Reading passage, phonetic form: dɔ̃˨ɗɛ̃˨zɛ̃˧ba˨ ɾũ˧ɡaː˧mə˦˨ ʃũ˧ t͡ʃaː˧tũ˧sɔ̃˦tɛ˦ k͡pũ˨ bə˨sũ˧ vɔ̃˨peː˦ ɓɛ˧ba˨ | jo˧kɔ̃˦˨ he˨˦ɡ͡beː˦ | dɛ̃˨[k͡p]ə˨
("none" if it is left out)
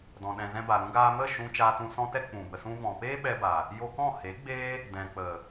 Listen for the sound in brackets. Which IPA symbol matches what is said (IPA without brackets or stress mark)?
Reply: k͡p